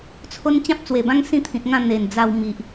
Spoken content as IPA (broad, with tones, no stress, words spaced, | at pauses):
t͡sʰo˦n t͡ɕã˦p̚t͡swe˨˩bã˦ŋ sĩ˥˧t̪ʰĩ˨t̚ŋã˥˧ n̪e˨˩nd͡za˧wmi˨ʔ